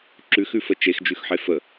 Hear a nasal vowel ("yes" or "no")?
no